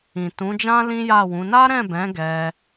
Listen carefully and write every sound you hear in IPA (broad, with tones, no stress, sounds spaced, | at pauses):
ĩ˨ t ũ˨˦ d͡ʒ ã˦ l ĩ˦ j a˦˨ w ũ˨˦ n a˦ ɾ ɛ̃˦˨ b ɛ̃˨˦ ɡ ɛ˧